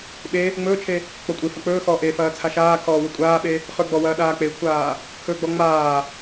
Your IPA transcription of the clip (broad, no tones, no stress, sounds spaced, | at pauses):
ɓ e | ŋ͡m ɵː t͡ʃʰ e | k͡p ɔ kʷʼ e f ɐ k͡p ɵː x ɔː ʔ e f ɐː t͡sʰ a ʃ aː kʰ ɔː w ɵ kʷʼ aː ɓ e | χ ɵ ɡ͡b ɔ w ɐː ɗ aː k͡p e kʷʰ aː | kʰ ɵ ɡ͡b ɔ ŋ͡m aː